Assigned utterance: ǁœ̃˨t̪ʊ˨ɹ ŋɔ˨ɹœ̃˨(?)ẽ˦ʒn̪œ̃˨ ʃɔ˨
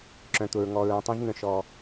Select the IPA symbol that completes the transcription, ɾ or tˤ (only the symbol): tˤ